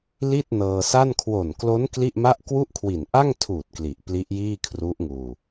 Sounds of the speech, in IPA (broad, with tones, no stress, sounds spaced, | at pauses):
l i˥˩ t̚ n ɤː˧ s a˥˩ n kʰ w o˨˩ n k l o˦˥ n k l i˥˩ ʔ m a˥˩ ʔ k w u˥˩ ʔ kʰ w i˨˩ n ʔ a˥˩ ŋ tʰ uː˨˩ t̚ k l i˨˩ ʔ p l i˦˥ ʔ j iː˥˩ kʰ r u˦˥ ʔ ŋ uː˧